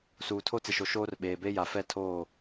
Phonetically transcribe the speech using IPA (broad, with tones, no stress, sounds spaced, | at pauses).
s uː˨ tʰ o˦ t͡s ɪ˨ ʃ o˨ ʃ oː˦ r ɓ eː˨ b e˦ j a˨ f ɛ˦ tʰ oː˦˨